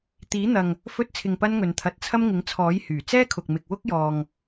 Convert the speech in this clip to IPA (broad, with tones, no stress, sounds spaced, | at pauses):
t̪ iː˨˥ n̪ ɐ˨ ŋ | f ɵ˧ t̚ t͡sʰ ɪ˨ ŋ p ɐ˧ n ŋ ɵ˨ n t̪ʰ ɐ˨˥ t̚ t͡sʰ ɐ˥ m ŋ ɪ˨˥ ŋ t͡sʰ ɔː˨˥ j h yː˨˩ t͡s ɛː˥ kʰ ʊ˨ k̚ m ɪ˨ k̚ w ʊ˥ k̚ j ɔː˨ ŋ